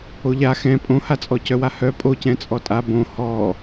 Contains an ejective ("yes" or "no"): yes